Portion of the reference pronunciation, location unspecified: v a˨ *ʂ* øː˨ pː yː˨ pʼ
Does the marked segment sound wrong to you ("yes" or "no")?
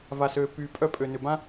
yes